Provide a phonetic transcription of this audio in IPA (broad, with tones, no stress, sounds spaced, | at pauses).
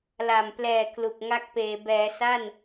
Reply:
l a˨˩ m p l ɛː˨˩ k l u˨˩ k̚ ŋ a˦˥ k̚ p eː˩˦ b ɛː˩˦ s a˥˩ n